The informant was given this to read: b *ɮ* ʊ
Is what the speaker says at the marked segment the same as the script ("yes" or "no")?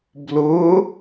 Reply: no